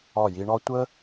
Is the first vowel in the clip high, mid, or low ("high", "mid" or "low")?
low